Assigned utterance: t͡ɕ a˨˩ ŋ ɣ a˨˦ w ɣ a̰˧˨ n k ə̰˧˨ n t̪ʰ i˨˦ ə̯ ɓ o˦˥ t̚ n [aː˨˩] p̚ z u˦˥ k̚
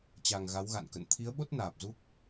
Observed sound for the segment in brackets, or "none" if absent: aː˨˩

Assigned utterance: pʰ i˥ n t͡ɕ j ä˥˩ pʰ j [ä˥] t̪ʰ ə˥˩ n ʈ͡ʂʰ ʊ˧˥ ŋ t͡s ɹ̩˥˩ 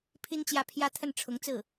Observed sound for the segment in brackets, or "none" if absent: ä˥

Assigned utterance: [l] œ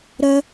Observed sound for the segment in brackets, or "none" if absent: ɾ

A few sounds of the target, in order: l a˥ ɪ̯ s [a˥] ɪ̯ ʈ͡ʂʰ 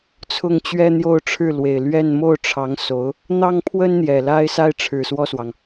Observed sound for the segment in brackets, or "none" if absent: a˥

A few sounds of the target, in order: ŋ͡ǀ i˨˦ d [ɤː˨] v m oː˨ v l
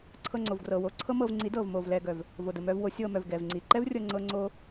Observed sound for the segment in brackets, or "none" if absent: ɤː˨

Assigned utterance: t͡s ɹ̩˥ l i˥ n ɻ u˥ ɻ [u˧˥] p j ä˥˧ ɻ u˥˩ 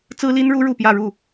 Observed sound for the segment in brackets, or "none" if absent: u˥˧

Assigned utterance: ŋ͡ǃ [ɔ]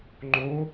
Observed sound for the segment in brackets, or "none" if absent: o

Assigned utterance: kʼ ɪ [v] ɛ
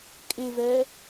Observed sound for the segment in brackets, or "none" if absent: v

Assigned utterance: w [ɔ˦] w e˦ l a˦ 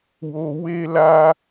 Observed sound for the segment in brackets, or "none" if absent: o˦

